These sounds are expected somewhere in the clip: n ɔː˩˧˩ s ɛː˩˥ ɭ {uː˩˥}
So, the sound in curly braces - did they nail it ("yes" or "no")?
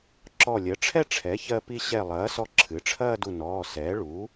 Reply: yes